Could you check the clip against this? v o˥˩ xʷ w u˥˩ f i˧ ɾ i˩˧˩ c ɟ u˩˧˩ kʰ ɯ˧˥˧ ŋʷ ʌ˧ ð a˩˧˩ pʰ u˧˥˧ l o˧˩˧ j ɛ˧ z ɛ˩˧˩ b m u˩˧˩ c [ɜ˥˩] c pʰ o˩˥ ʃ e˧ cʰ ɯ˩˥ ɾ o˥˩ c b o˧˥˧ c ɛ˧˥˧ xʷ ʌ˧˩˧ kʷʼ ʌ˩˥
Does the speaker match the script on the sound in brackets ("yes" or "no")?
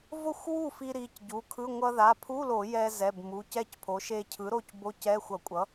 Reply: no